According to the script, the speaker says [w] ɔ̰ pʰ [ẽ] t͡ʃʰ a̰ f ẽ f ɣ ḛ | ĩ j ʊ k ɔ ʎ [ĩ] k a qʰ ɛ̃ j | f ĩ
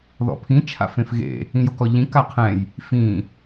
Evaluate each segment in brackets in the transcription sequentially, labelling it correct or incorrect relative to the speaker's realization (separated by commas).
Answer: incorrect, incorrect, correct